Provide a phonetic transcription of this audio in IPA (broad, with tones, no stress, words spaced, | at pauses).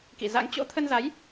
kḭ˧˨za̰˧˥ŋ t͡ɕo̰˧˥t̪ʰə˧nza˨˦j